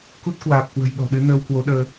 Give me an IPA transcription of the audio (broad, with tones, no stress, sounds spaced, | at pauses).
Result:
k u˦˥ t̚ k w aː˨˩ p̚ k w ə̤˨˩ j ɗ ɔ̤˨˩ ɗ ɨ˨˦ n əː˧ w k w o˨˦ ɗ əː˧